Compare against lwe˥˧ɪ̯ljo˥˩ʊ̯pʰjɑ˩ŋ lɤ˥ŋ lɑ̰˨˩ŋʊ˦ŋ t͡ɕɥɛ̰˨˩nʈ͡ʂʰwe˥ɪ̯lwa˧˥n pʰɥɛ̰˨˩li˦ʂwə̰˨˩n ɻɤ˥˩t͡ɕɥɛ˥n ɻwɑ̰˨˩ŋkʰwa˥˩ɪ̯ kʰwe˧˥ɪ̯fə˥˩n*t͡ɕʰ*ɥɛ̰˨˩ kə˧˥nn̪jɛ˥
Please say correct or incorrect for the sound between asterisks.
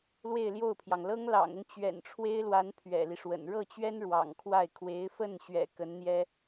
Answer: incorrect